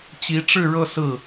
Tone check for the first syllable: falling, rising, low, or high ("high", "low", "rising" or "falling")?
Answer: rising